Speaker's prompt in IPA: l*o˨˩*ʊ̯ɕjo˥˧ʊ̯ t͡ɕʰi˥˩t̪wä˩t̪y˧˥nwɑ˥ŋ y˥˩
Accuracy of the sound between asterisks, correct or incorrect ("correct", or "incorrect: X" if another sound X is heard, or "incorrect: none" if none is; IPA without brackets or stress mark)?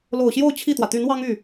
correct